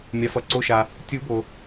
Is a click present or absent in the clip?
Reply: present